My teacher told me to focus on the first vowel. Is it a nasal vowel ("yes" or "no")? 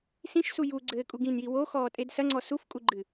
yes